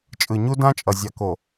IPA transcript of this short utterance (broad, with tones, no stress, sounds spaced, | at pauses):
t͡ʃʼ ɯ˨ ɲ u˦ d ã˦ t͡ʃʼ ʌ˨ zʲ a˨ k o˨